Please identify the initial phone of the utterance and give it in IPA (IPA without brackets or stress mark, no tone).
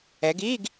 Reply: ɛ